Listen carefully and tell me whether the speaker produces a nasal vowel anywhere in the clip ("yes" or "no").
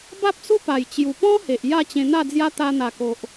yes